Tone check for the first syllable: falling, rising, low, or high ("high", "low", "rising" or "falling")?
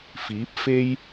rising